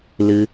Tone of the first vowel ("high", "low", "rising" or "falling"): high